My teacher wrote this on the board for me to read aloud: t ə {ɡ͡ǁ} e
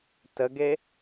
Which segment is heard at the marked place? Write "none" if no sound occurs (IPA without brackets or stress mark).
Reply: ɡ